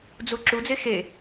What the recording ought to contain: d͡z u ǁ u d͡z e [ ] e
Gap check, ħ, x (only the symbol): x